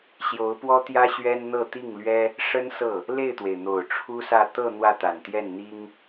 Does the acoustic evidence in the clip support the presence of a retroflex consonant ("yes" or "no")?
yes